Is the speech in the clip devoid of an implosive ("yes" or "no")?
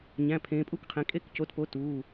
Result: yes